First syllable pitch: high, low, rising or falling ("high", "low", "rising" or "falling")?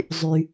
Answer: low